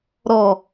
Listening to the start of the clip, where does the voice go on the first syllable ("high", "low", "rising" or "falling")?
low